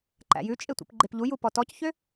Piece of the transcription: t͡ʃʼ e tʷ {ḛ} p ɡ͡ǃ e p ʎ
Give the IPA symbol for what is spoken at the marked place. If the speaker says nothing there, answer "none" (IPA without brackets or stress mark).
ḭ